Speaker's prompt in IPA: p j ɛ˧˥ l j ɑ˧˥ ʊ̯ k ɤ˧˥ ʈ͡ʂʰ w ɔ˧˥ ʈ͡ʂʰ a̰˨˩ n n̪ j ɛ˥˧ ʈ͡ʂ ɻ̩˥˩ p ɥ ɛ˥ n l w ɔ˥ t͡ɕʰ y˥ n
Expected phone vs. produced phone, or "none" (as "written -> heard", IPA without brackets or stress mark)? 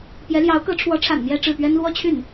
y˥ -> y˥˩